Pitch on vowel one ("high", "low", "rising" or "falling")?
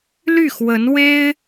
falling